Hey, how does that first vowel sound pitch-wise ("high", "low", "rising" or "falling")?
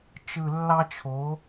low